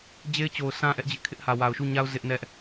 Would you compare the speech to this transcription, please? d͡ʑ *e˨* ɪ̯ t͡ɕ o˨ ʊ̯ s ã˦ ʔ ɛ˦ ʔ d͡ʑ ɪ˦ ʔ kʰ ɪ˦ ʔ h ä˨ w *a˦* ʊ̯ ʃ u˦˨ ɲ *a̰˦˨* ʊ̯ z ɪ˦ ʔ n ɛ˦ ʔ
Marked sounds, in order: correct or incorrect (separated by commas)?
incorrect, incorrect, incorrect